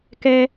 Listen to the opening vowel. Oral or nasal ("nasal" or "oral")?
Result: oral